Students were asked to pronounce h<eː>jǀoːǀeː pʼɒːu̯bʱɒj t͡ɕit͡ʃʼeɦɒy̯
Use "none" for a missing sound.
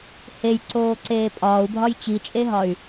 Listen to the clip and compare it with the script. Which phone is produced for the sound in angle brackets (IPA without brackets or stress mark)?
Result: e